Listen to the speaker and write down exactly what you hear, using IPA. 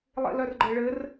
lˠḭlœrɡ͡ǃɘɭɘr

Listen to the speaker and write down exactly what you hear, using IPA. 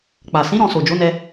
k͡pa˨ sĩ˨˦ ɾɔ̃˧so˨d͡ʒo˨˦nɛ˧

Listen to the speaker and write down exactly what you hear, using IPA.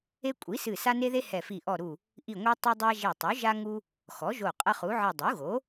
e˦ kʷʼi˩˥sɨ˧˩ sa˦ne˦ðe˦ hɛ˧˩fi˧˩ ʔɔ˧˩ɾu˧˩ | ʔi˧˩ŋʷe˦ tˤɐ˦dˤa˦ ʒe˧˩tˤu˩˥ʒa˦ŋu˦ | xɔ˩˥ʒo˧˩ qʼɐ˦χu˩˥ʕɨ˧˩ dˤu˩˥ɣo˩˥

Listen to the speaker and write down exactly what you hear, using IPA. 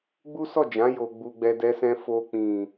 ɡ͡bu˦sɔ˦˨d͡ʒã˨˦ jo˧ɡ͡bu˧ɡ͡bɛ˧ dɛ˧sɛ̃˧ fo˧k͡pĩ˨

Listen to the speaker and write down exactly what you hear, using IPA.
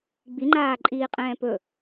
ɡ͡biŋ͡ǃaːǃʼiːqʼɛ̃ː pɵ

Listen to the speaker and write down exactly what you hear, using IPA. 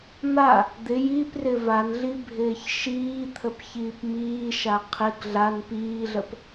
n̪a | d̪ɪ jiprɪ vanɮi bʱɪːçʃiːt̪ʰəp çiːpmiːʃa qʰɪɡ ɮan piːɮəp

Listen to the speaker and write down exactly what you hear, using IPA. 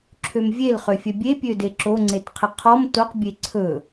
ǁʰømvʲelχøfʲœ bʲepʲøde ǁoŋ͡ǀetqʰə qʰɔm toq bʲeǀʰɵ

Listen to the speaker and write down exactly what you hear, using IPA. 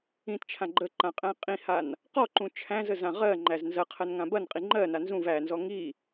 ĩtt͡ʃʰã ɡ͡ǃəǃã qʼæ̃qʼĩhan | qɔǃũ t͡ʃʰæ̃zə zãʁɜŋ͡ǃæz nzɐqʰɜn ŋãbɐnqʼi ŋ͡ǃɜna nzũv ænzɔ ŋi

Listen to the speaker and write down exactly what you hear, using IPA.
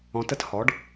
ɔ̃˩˧tə˧t hɔ˩˧ɖ

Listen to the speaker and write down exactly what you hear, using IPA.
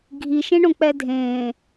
ɡʱiʃẽɳõk͡pɛ dʱẽː

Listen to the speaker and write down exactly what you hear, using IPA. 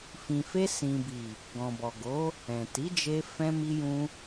fĩ˨fe˧sĩ˨bi˨ | ɡɔ̃˨bɔ˨ɡo˨˦ | ɛ̃˨ti˨˦d͡ʒe˧ fɛ̃˧mi˧jũ˧

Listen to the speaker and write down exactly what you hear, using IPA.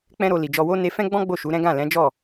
k͡pɛ̃˦ɾo˧ li˨d͡ʒɔ˧wo˦ ne˧fɛ̃˦ɡ͡bɔ̃˦ ɡ͡bo˦˨ʃu˨˦ɾɛ̃˦ ɡã˦˨lɛ̃˨˦d͡ʒɔ˦˨

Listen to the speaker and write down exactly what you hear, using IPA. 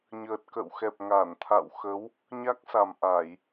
ɲəː˨˩t̚kə̰ː˧˨wxɛ˨˩p̚ ŋa˧˩nt̪ʰa̰˧˨wxə˨˦w | ɲa˦˥k̚sa˨˩m ʔa˧˩˨j

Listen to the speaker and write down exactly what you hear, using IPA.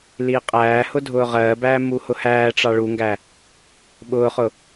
liːqʼæːhʊ dʱʊːʁɜːbæː muhʊhæːʈ͡ʂɑ ɭuŋɡæ | ɓʊːχʊ

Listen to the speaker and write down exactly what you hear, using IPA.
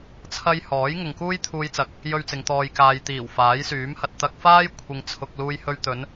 t͡sʰɐ˥j hɔː˨˥jŋʊ˨ŋkuː˥j t̪ʰuː˧jt͡sɐ˨˥k̚ | jɵ˥ɥt͡sɪ˨˧ŋ t̪ɔː˨jkaː˨jt̪iː˨˩w faː˨˥jsyː˨˥mhɐ˨t̚ t̪ɐ˧k̚faː˥j kʷʰɪ˧ŋt͡sʰʊ˧k̚ luː˧jhɵ˧ɥt̪ɵ˨˧n

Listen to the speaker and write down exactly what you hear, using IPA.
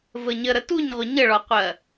vəɲə ɾətuɲʁʷə ɲəɭɒqʷɜ

